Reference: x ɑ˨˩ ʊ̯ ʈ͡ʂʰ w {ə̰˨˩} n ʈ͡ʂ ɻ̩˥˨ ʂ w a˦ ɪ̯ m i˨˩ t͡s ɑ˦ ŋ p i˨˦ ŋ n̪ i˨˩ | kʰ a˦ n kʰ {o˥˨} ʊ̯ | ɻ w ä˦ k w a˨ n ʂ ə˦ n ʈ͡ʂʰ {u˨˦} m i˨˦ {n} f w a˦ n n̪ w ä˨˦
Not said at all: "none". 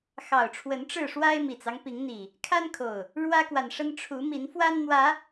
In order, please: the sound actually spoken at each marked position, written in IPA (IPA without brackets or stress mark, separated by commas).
ə˨˦, o˨˩, u˨˦, n